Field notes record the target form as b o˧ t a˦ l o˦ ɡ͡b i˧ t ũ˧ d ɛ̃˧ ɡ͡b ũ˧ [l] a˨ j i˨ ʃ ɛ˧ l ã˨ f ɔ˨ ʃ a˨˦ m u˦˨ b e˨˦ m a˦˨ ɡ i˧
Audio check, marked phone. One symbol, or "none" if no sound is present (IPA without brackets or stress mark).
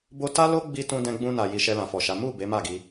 n